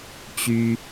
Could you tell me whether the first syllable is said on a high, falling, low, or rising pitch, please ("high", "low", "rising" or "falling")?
high